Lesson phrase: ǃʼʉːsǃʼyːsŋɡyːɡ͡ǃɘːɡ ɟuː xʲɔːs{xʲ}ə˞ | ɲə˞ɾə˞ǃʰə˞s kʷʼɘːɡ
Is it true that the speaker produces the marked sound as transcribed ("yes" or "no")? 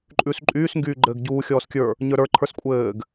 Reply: no